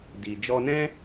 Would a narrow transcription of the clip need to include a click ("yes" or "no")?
no